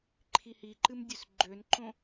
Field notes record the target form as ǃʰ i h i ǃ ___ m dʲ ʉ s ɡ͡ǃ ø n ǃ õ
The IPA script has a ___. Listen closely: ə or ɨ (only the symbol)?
ɨ